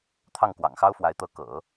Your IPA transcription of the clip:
t̪ʰ ɑ˥˩ ŋ k w ɑ̰˨˩ ŋ x ɑ˥ ʊ̯ f w a˧˥ ɪ̯ t̪ ɤ˧˥ k ɤ̰˨˩˦

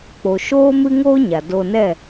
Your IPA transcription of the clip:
k͡p o˨ ʃ oː˦ m ɨ˦ ŋ oː˦ ɲ a˨ d o˧ n ɛ˦˨

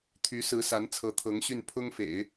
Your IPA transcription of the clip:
t̪ʰ y˧˥ s ɹ̩˧˥ s a˧˥ n t͡sʰ ɤ˧˥ t̪ʰ ɤ˧˥ ŋ ɕ y˥˩ n pʰ ʊ˥ ŋ f ḛ˨˩˦ ɪ̯

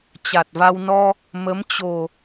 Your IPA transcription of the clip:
t͡ɕ a˨˩ t̚ v a˧ w n ɔ˧ | m ə˨˦ m t͡ɕ o˨˩

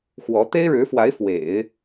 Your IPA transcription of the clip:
x w ɔ˧˥ t̪ e˥ ɪ̯ ɻ ɻ̩˧˥ f w a˧˥ ɪ̯ f w ḛ˨˩˦ ɪ̯

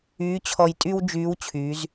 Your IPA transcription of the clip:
yː˧˥ t͡ɕʰ ɔ˧ j tʼ y˥ w d͡ʒ yː˧˥ w t͡ɕʰ yː˩˧ z

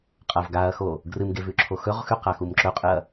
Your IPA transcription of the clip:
qʼ ɐ v ɡ a ɐ̯ x o | ɡ r ɨ m ɡ e v ʉ ǁʰ o x ɵ ʁ x ʉ q a x u m ǁ ɵ qʼ ɨ ɐ̯

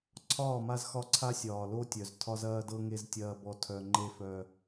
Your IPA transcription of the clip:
ǀʰ ɒː˦˨ m a˦ z x ɒ˦ ǀʰ a˦ sʲ ɒː˨ l o˦ tʲ œ˨ z tʰ ɒ˦ z ɐː˦ d ɤ˦ ŋ e˦ z tʲ ɐː˦ b ɔ˦ tʰ œ˦ ŋ͡ǃ e˦ f œ˦

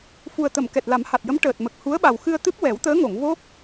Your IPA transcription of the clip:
f u˨˩ ə̯ t̪ ə˨˩˨ m k ɛ˨˩ t̚ l a˨˩˦ m h a˨˩ t̚ j ə˧˥ m ʈ əː˨˩ t̚ m ə˨˩ k̚ h u˧˥ ə̯ ɓ a˨˩ w x ɨ˧ ə̯ t̪ ɨ˦˥ p̚ w ɛ˨˩˦ w t̪ əː˧˥ ŋ o˨˩˨ ŋ v o˦˥ k̚

